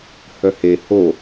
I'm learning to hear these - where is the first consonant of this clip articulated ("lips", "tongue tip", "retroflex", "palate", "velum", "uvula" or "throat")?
throat